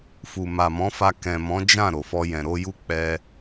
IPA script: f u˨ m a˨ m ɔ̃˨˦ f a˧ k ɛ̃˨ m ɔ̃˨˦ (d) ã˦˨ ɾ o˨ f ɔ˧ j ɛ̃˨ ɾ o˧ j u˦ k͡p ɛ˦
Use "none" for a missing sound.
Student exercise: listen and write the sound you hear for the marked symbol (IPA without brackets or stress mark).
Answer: d͡ʒ